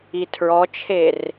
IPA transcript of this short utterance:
itʰɹɔt͡ʃʰer

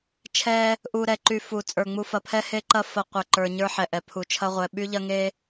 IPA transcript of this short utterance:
t͡ʃʰɛ˦ | ʔu˧ ɾɛ˧ǃy˧fu˨ t͡sʼə˞˨ŋ͡mu˧fɐ˨pʰɛ˦ he˦ǃɐ˦ fɐ˧qʷɐ˨ ǃə˞˧ɲə˞˦ħɛ˨ʔɛ˨ pʰu˨t͡ʃʰɐ˦ʁʷɛ˧ ɓy˦ʎɐ˦ ŋe˦

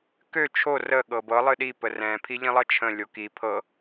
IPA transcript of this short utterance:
kø t͡ʃʰo rə ɠɤbɤ lˠɨɗi pərɛ̃ pʰiʎĩlˠʌt͡ʃʰə̃ lʲoki pʰɤ

